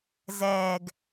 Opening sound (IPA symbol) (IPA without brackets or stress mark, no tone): z